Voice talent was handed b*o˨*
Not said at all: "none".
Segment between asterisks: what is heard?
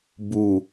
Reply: u˨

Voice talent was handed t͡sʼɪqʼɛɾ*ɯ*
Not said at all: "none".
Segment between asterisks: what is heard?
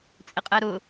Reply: ʊ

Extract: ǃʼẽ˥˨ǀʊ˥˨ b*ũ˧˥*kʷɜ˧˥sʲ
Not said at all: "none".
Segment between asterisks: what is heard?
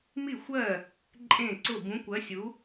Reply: ũ˧˥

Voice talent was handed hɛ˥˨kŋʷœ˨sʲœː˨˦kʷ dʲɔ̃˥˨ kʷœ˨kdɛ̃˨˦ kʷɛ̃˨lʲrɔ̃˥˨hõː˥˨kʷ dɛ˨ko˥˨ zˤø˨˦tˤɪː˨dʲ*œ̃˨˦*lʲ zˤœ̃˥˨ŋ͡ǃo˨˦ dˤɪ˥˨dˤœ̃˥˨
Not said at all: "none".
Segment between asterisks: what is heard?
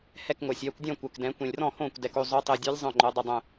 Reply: œ˨˦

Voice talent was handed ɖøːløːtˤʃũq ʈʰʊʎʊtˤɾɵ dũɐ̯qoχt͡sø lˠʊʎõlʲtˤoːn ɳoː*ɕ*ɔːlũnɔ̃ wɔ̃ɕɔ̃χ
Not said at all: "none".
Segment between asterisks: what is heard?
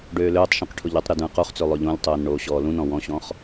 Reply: ɕ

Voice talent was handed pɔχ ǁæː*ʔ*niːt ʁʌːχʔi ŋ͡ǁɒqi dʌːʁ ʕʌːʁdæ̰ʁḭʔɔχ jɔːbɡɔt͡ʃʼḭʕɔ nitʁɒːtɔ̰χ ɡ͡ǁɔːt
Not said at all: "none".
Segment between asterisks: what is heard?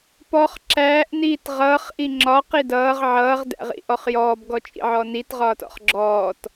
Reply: ʔ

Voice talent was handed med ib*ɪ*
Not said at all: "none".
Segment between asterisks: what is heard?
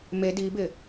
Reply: ɪ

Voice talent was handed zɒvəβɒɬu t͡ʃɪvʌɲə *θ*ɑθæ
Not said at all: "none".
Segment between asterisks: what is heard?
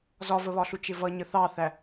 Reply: θ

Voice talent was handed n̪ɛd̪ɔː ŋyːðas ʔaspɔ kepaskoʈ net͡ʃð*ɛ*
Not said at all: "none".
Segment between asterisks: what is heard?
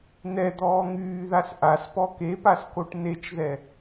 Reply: ɛ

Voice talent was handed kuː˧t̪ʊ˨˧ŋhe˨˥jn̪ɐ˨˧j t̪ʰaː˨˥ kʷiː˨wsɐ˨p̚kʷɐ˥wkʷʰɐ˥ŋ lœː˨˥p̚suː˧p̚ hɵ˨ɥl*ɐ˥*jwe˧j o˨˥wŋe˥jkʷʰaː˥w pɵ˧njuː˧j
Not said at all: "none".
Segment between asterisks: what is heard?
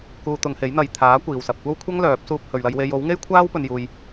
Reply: ɐ˧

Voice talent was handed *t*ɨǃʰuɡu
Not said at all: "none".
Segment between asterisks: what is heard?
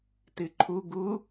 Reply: t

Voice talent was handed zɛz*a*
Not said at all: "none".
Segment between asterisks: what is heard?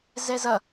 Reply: ʌ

